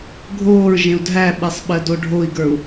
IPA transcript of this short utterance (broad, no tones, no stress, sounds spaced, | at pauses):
ɡʱ oː ɹ ʒ ẽ u̯ dʱ æ ɓ ɛ sˤ ɓ ɜ d o ɖʱ o i̯ ɡ ə˞ u̯